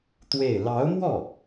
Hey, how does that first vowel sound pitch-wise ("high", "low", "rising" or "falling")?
falling